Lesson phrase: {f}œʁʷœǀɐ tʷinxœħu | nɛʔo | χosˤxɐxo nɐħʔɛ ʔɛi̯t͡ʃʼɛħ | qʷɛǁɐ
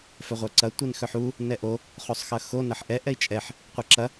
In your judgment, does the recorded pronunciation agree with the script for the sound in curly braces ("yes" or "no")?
yes